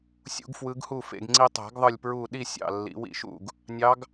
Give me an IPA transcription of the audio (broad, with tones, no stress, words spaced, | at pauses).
sʲṵ˧˥ɡfwɯ˧˥ɡhu˥˨fḛ˧ɡ ŋ͡ǀi˧tˤæ̤˨˩˦ɡðˤɯ˧˩lʲpɹuː˧˩ ɗi˥˨sʲɑ̰˧˩ lːḭ˨˩˦wḭ˧˩ʃṵ˥˨ɡ | nʲɑ˧˥ɡ